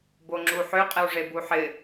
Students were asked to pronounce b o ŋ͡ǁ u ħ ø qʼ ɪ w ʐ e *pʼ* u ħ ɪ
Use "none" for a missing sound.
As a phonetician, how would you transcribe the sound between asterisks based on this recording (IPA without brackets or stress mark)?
b